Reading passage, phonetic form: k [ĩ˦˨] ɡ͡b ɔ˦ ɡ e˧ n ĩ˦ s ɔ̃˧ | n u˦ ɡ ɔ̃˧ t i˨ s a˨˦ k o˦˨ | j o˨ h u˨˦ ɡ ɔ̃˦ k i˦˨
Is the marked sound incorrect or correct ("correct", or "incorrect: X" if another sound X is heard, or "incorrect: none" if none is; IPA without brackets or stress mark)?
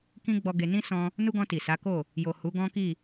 incorrect: ĩ˦